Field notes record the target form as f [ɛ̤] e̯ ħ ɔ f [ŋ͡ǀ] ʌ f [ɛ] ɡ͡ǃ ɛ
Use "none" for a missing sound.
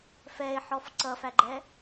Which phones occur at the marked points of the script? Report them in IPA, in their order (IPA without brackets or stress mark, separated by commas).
ɛ, ǀ, æ